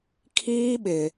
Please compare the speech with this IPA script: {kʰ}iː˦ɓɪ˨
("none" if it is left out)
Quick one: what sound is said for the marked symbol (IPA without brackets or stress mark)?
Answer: kʰ